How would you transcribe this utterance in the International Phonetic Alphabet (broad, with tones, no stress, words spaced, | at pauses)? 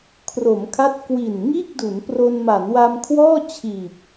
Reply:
kʰro˩˦mkʰa˦˥t̚ kwi˨˩n ŋiː˥˩k̚du˩˦npro˧n ma˩˦nwa˧mkʰwɔː˥˩t͡ɕʰiː˨˩p̚